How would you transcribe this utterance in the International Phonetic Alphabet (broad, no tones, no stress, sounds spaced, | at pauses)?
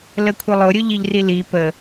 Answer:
l ə kʷʰ ə lˠ ʊ ɾʲ ʊ ʎ i ʎ r i l i p ə